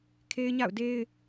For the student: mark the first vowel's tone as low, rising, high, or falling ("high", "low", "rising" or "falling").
high